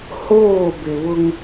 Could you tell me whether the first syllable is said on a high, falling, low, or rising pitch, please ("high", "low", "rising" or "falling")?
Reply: falling